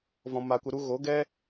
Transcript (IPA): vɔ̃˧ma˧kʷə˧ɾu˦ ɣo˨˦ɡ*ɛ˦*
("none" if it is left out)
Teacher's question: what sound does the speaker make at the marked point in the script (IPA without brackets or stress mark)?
ɛ˦